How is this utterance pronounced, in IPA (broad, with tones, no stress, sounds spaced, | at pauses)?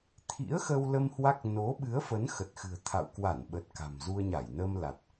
t̪ʰ ḭ˧˥ ə̯ x ə˧ w l ə˧ m h w a˦˥ k̚ n o˨˦ ɓ ɨ˨˦ ə̯ f ə˨˦ n x ə˨˩ t̚ x ɨ̤˨˩ ə̯ t̪ʰ a̰˧˨ w k w a˧˩ n ɓ ə˨˩ t̚ k a̤˨˩ m z u˧ ə̯ ɲ a˧˩ j n ə˧ m l a˨˩ t̚